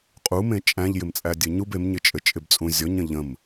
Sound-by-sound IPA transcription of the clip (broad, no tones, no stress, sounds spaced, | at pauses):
qʼ u m ẽ t͡ʃʼ æ̃ ʎ j ɪ m t͡sʼ æ dʲ ɘ ɲ u b e m ɲ ɪ t͡ʃʼ ɘ t͡ʃʼ ɪ b t͡sʼ ũ zʲ ɔ ɲ ə̃ ʎ ə̃ m